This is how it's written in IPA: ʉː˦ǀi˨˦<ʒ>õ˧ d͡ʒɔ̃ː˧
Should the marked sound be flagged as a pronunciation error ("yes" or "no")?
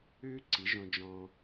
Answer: no